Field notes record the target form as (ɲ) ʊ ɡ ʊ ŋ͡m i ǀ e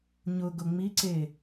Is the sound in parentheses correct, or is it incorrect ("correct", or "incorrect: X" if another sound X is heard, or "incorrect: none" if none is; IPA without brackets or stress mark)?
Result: correct